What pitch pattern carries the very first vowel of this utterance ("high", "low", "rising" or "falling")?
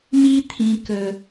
high